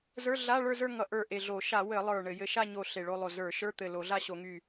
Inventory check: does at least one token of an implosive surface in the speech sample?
no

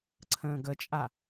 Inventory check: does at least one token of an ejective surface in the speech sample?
yes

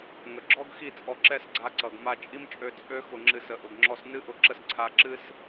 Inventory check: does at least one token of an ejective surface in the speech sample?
yes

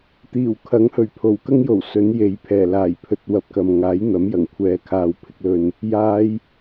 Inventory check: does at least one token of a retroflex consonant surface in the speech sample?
no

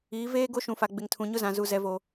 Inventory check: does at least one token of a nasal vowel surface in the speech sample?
yes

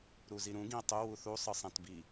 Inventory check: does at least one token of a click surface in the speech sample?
no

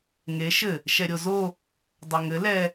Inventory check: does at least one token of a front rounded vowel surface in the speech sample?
no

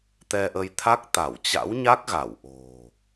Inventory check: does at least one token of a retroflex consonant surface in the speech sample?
no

